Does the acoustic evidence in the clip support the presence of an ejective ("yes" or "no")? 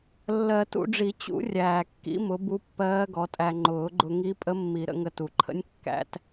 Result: yes